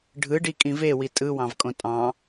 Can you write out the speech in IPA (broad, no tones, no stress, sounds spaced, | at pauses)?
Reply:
ɖʱ ɯ ɖ i kʼ ĩ v e w i tʼ ɯ w ɑ̃ v kʼ õ tʼ ɑ̃